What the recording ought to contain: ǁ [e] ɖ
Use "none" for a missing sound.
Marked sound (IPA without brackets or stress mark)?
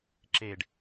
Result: e